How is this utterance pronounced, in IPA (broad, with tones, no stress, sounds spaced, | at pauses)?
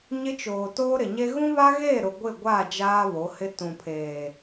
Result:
ɲ ɪ˦ t͡ʃ oː˨ t oː˦ ɾ ɪ˨ ɲ e˦ ɣ ũ˦ β a˦ ɣ e˦˨ ɾ ʊ˨ ɡʷ ɪ˦˨ ɡʷ a˦˨ d͡ʒ aː˦ β o˨˦ h ɪ˦ t ũ˨ pʰ eː˨